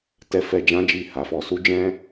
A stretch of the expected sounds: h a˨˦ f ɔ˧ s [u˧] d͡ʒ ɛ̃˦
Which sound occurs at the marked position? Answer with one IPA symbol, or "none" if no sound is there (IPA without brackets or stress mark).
u˦